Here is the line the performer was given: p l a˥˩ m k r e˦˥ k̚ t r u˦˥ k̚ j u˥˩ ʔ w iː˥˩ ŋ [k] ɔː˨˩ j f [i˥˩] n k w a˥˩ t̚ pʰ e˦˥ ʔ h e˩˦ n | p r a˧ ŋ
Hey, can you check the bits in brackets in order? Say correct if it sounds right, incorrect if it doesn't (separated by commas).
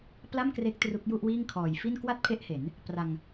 incorrect, correct